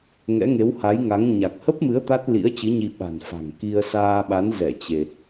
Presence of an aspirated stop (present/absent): absent